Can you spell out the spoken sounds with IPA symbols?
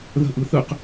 ð ə̤ ʔ ɯ θ ɯ q

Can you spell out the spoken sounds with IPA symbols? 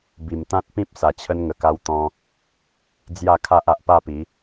b i˨˩ m t̪ ã˦ t̚ p ĩ˦ p̚ s a˨˩ t͡ɕʰ ə˧ n ŋ ə˨˩ k a˧ w t̪ ɔ̃˧ | d͡z j a˥˧ kʰ a˦ ʔ a˨ ʔ p a˥˧ p i˨˦

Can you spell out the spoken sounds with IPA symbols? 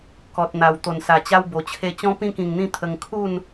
k ɔ˨ t̚ n̪ a˨˩ w t̪ o˨˩ n s a˨˩ t͡ɕ a˧ w b o˨˩ t͡ɕʰ e˧ t͡ɕ ɔ̃˧ p ĩ˧ k ĩ˨˩ ŋ n̪ ĩ˧ t̪ʰ ə˧ ŋ kʰ u˥˧ n

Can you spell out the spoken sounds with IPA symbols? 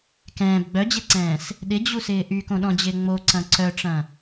k ɛ̃ː b ɡ͡b œ d͡ʑ e ǀ ɛ̃ː s | ɗ ɪ d͡ʑ u s ɪː ʔ y k õ ɗ ɔ̃ d͡ʑ ɪː ŋ͡m o ǀ ɐ̃ ǀ œ ʈ͡ʂ ɐ̃

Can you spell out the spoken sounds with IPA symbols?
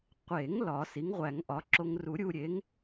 qʷ e˨˩˦ ŋ l ɒ˨˩˦ s i˩˥ ŋ ʁʷ æ˨˩˦ ŋ ʔ ɒ˩˥ ǁ o˧ ŋ r u˨˩˦ ɾʲ u˧ ɾʲ e˩˥ ŋ

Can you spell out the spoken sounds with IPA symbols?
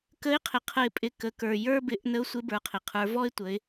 k ə˧˥ ɪ̯ qʰ ɪ˩ qʰ ə˧ ɪ̯ pʼ ɪ˧ k ə˩˧ k ə˞˩ j ə˞˥ b ɪ˩˧ ʔ n ə˧˥ ʊ̯ sʷ ɪ˧˥ b ə˞˩ qʰ ɪ˩ qʰ ə˞˩˧ v ɔ˥ ɪ̯ tʷ ə˩˧ ɪ̯

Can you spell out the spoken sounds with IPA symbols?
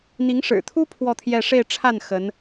n̪ i˧˥ ŋ ʂ ɻ̩˨˩ t̪ʰ u˥ pʰ w ɔ˥˧ t̪ʰ j ɛ˥˧ ʂ e˥˧ ɪ̯ ʈ͡ʂʰ a˥˩ n x ə˧˥ n

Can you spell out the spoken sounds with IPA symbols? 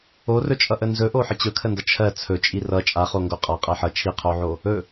o r ɵ t͡ʃʼ ʌ ʔ ə n z ɵ ʔ o ħ ə t͡ɕ ɵ kʰ ə n d ʌ t͡ʃʰ ɜ t͡sʰ ɵ t͡ʃʼ i r ʌ t͡ʃʼ a χ o ŋ ɡ o qʼ a qʼ ɜ ħ ʌ t͡ʃʰ i qʰ o ʕ o | ɵ

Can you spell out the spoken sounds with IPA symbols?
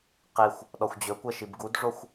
q i xʷ | ɗ ɔ xʷ d͡ʑ ɵ kʷ ɛ ʃ i b ɡ u d ʐ o xʷ

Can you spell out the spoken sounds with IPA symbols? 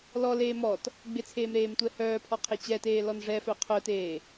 l ɔ l eː m ɔ t | ɡ͡b ɪ t͡sʰ eː m ɾ eː m tʷ ɛ h œː pʰ ɔ qʰ e t͡ɕ ɛ t eː l ɔ n ʐ ɛ f œ qʰ œ t eː

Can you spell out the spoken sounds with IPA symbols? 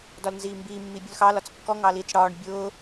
d ɒ l n z iː m b iː mː iː bʲ ʊ l x ɑ l ɒ t͡s kː ɔ ŋ ɑ l iː t͡s ɽ ɒː ɳ bʲ ʊː

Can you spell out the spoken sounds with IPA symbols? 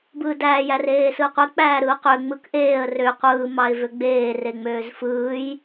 b ɯː d æː j æ r eː s ɯ ə̯ qʷ e k͡p æː ɾ ɯ ʊ̯ q ø ŋ͡m ɯ k ʔ eː ə̯ r ø qʷ ɯː m ɑ ɪ̯ v ø ɡ͡b eː r e ŋ͡m øː z f ɯː j

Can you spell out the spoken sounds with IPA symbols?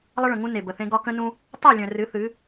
lˠ ə˦ ɭ ə̃˨ ŋ ũ˦ n e˨ b ə˨ θ ẽ˦ ɡ ɒ˦ k ə̃˦ n ũ˦ | tˤ œ˦˨ lʲ œ̃˨ r ɨ˨˦ θ ɨ˨˦

